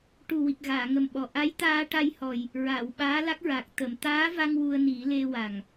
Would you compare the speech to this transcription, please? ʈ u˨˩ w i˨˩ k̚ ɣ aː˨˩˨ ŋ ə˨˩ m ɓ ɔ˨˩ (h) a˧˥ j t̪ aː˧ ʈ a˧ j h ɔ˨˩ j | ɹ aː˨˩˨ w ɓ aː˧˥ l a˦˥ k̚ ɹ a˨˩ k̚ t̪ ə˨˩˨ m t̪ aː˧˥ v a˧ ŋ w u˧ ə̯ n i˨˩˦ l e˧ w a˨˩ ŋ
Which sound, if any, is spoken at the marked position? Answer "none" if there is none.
ʔ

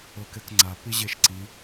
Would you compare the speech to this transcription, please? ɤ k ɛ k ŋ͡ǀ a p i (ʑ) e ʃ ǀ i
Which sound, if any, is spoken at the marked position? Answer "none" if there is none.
ʑ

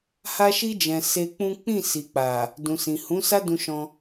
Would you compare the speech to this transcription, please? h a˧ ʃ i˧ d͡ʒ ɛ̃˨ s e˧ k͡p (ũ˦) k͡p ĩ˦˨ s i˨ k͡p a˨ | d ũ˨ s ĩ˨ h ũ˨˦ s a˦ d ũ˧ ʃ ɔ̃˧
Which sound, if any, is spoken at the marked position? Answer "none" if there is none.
ũ˦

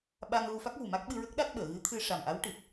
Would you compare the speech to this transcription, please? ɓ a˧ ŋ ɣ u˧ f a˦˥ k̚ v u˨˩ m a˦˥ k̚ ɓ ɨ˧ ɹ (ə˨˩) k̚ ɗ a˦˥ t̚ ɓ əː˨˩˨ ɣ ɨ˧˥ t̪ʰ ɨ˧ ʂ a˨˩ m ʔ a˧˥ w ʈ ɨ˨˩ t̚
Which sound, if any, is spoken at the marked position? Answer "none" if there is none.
ə˦˥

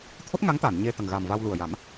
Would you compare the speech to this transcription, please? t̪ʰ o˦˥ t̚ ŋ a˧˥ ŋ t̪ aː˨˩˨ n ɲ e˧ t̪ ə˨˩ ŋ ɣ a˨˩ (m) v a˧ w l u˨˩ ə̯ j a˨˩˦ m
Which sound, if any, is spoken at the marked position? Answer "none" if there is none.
m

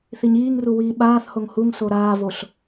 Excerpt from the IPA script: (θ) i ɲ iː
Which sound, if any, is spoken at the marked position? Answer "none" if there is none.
θ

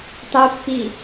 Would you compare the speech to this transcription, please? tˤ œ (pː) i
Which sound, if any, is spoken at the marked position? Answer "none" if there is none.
pː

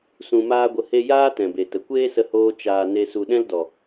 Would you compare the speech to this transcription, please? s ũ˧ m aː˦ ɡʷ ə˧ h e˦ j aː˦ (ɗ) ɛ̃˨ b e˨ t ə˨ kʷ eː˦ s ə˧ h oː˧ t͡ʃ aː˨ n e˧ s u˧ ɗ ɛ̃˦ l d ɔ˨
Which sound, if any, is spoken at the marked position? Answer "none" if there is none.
t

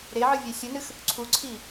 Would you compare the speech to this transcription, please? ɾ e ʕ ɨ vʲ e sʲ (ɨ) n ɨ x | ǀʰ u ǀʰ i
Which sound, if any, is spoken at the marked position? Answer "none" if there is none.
ɨ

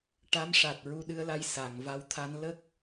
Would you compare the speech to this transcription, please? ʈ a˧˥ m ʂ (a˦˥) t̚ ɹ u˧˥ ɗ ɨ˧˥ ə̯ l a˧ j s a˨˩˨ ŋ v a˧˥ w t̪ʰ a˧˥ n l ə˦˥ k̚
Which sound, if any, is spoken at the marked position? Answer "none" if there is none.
a˨˩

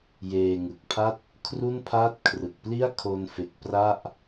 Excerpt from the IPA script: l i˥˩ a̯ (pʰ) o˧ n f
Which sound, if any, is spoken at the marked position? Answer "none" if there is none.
kʰ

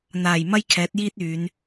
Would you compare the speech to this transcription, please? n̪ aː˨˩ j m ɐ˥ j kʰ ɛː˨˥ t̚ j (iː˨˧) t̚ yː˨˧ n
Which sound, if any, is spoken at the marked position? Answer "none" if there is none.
iː˥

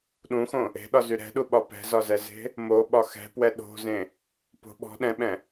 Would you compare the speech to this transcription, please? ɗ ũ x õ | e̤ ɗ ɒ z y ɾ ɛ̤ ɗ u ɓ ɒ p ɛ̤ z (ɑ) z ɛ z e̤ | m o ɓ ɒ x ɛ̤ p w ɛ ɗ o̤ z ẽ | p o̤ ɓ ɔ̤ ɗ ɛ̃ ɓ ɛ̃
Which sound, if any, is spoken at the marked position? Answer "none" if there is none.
ɒ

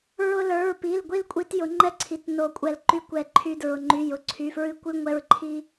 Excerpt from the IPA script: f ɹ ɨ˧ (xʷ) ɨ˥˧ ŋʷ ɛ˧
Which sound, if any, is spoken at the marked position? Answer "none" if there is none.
kʷ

